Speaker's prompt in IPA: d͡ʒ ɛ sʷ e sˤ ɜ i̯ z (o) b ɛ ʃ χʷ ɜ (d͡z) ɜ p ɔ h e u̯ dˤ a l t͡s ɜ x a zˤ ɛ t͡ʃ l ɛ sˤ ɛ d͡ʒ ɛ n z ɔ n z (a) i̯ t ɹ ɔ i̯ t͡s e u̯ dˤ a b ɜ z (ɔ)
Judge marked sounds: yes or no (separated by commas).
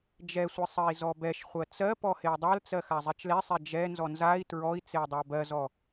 no, no, yes, yes